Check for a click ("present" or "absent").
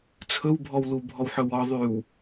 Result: absent